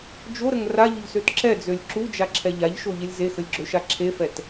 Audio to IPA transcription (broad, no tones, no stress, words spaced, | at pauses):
d͡ʒoɾəŋ raʎʊʎsøt ǁɛd͡zølʲ ǁud͡ʒaǁʰɛ ʎaʎʃoʎɪlʲ zexəlʲɡ͡ǁøʃa ǁʰefɛt